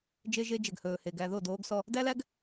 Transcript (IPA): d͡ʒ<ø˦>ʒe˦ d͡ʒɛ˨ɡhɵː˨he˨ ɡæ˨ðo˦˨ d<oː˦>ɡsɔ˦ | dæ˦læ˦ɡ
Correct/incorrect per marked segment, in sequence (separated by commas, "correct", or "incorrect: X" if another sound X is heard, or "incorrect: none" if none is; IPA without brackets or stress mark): incorrect: e˦, correct